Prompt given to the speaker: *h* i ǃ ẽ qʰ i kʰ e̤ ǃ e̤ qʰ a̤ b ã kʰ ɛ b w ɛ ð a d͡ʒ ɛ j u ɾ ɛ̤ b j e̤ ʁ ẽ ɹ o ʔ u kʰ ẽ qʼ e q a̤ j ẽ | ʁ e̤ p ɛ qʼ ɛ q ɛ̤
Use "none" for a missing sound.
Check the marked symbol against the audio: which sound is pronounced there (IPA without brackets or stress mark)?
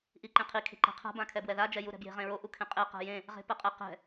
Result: ʔ